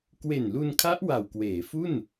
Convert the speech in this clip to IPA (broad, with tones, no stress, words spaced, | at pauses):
kwe˨˩nlu˧nkʰa˦˥ʔ wa˨˩wkweː˩˦fu˥˩n